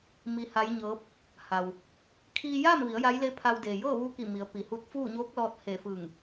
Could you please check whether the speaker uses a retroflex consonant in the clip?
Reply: no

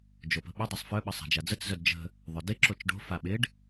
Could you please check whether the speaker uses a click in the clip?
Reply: yes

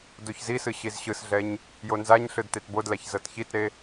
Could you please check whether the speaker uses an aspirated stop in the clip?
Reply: no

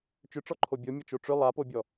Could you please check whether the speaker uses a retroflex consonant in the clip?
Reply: yes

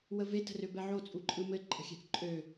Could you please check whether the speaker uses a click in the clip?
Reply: yes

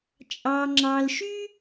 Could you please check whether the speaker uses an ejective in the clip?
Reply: yes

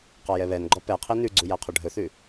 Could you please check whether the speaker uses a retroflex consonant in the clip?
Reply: yes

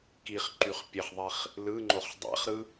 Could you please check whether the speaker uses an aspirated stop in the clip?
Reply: no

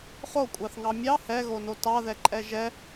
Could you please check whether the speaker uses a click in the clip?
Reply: yes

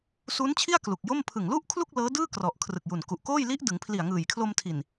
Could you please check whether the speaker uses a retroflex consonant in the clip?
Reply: no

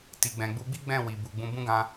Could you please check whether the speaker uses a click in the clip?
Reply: no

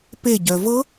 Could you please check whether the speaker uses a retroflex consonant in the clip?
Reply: no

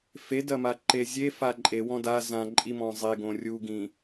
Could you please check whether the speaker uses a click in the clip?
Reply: yes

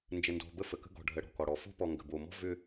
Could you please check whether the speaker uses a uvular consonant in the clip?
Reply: no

